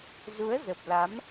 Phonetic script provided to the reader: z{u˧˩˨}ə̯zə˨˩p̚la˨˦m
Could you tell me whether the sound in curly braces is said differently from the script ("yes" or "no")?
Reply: yes